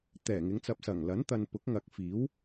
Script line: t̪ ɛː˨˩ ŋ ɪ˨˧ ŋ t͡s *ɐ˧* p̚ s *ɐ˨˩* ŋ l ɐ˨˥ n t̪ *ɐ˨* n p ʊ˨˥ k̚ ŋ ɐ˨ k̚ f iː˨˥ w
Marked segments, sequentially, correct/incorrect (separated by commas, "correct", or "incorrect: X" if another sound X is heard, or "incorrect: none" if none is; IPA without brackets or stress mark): correct, correct, correct